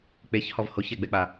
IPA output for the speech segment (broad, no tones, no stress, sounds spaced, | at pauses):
k͡p e ç h ɔ v h o ç ɛ ɡ͡b ɛ k͡p a